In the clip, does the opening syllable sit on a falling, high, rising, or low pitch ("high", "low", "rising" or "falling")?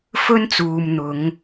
high